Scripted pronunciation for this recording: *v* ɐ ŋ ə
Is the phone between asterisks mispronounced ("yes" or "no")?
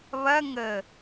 yes